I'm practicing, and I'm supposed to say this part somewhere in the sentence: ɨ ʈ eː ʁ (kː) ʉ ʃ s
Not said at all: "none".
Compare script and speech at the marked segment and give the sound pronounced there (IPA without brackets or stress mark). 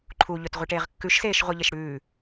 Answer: kː